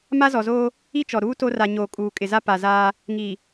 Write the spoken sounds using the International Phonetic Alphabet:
m a˦ z ɔ˨ z oː˦ | i˦ t͡ʃ ɔ˨ ɾ uː˦ t o˦ r a˨ ɲ oː˨ kʼ uː˨ kʼ ɪ˨ z a˦ p a˨ z aː˦ | ŋ i˨

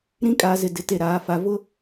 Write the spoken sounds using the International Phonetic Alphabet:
ɾ ĩ˦ kʼ aː˨ z ɪ˨ d ɪ˨ t e˨ ɾ aː˨ f a˨ v ʊ˦

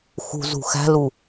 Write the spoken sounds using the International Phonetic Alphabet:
x ṳ z ṳ x æ̤ l u

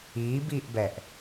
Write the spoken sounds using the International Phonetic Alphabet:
iː b iː ʔ b ɛ ʔ

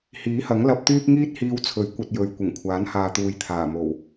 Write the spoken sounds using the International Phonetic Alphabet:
h iː˨˥ h ɐ˨˥ ŋ l ɐ˧ p̚ t̪ yː˥ p̚ ŋ iː˥ t̚ h iː˧ w t͡sʰ ɵ˨˥ ɥ kʷ ɐ˧ t̚ j ɵ˨˧ ɥ kʷ ɪ˨˩ ŋ kʷʰ aː˨˥ n h aː˨ t̪ uː˨ j t̪ʰ aː˨˩ m o˨˩ w

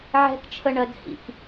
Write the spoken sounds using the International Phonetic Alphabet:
ʕ ɛ̤ k t͡ʃʰ ə ɳ ɜ d h ḭ k

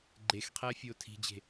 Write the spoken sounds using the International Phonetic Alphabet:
ɡ͡ǃ e x qʰ ɛː fʲ oː tʰ i̤ d͡ʑ e̤

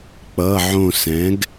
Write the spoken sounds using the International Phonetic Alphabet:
k͡p ʌ˩˧˩ ʕ õ˧˩ s ɛ̃˩˥ ɡ

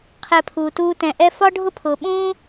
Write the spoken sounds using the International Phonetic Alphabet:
qʰ ɛ˧ pʰ uː˨ t uː˦ t ɛ̃˧ ʔ ɛ˦ f ɒ˦ ɖʱ ʊ˦ pʰ ʊː˨ ɓ ũː˦

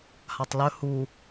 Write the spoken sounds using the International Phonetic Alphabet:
h a tˤ l ɵ h u

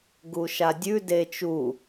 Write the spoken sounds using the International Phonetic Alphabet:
ɡ u ʃ a dʲ ʉ d e t͡ʃ u

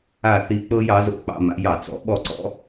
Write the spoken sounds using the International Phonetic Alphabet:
a˥˩ θ i˧ k͡p ɤ˥ j ɑ˩˥ z o̰˥˩ k͡p ɑ̰˧ m a̰˩˥ j ɑ˩ t͡s ɔ̰˩˥ ɓ ɔ˥˩ ǀ ɔ̰˩˥

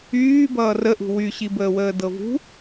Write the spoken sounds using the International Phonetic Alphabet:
yː b ʌː r ə ʔ ṳ w y ɕ i b əː w əː d ɤ v ṳ

